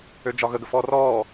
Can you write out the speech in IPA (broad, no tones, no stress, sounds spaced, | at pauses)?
ø d͡ʒ ɒ ɣ ə ɡ ə f ɔː r ɔː